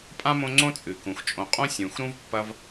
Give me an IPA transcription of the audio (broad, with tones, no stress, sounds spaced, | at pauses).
pʼ ã˥ m õ˦ ŋ͡ǀ õ˥ t͡sʼ ɨ˩ k ũ˩ x t͡ʃʼ õ˨ qʼ õ˥ sʲ ũ˩ x ɾ ũ˥ v pː ɐ˦ v